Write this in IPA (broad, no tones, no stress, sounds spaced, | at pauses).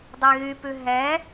dˤ e ɣ y p ʉ ɦ ɛ